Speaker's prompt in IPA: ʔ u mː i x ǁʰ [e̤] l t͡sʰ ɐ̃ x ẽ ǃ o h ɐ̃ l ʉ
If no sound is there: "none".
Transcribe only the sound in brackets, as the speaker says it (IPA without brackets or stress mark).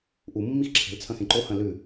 e̤